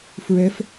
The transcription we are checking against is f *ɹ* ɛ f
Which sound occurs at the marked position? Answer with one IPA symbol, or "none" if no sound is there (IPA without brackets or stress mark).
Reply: ɹ